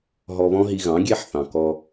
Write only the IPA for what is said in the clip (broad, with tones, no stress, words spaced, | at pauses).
ɦɔ˧βɔ̃˥ɦi˧ ɣɑ̃˩˥ɡʲe˥ħθɑ̃˩ kɔ˧